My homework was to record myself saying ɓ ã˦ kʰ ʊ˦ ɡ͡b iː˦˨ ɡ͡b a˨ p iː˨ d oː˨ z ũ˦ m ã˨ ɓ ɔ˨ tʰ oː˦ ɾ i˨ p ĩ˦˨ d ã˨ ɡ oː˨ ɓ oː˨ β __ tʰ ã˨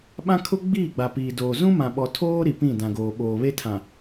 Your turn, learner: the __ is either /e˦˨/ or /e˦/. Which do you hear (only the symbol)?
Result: e˦